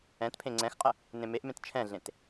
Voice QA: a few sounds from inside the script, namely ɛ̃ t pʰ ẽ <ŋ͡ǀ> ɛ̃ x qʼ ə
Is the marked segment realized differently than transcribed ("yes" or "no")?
no